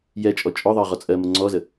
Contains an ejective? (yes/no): yes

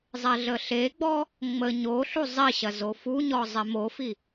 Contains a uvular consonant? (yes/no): no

